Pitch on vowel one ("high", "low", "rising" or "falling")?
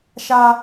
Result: high